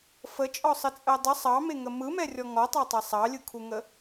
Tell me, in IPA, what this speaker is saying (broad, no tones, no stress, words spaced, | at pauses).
fət͡ʃʼɔsˤət͡sʼɜ dˤə sˤɑmeŋə mɯmɛrʲɔ ŋɔtˤɑtˤe sˤɑlʲɯkʰuŋə